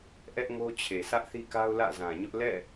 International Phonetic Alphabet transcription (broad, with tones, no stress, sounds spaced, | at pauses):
ʔ ɛ˦ ʔ ŋ o˦ t͡ɕʰ e˨ sʰ ä˦ ʔ θ i˦ k a˦ ʊ̯ l ä̰˦˨ z ã˨ ɲ ʊ˦ ʔ l ɛ̰˦˨